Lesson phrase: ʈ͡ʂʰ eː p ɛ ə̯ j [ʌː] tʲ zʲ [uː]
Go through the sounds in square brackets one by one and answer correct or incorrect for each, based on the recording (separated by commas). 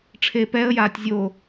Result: incorrect, incorrect